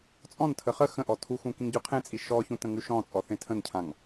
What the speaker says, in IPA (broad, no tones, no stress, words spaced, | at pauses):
t͡sʼɔ̃ntʰə χə xə̃ʔɔ tʰuxũ kĩŋɟʉqʰẽt͡sʼi ʃɔçũ tə̃ŋʉʃɔ̃t͡sʼɔ θẽtʰə̃ncʰãŋ